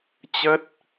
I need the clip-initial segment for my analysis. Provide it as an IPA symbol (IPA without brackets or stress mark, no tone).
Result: t͡ɕ